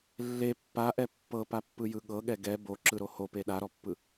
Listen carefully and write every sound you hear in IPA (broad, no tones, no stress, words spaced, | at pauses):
lːe pːaʔɛ pːɤpapːɯjɯ ɠɤɠɛ ɡɛ boǁɯɾo hope ɗaɾɔpːɯ